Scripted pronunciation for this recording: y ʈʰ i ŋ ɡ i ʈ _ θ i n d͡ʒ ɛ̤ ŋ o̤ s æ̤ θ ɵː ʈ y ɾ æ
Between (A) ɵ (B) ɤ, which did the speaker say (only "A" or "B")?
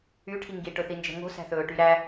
A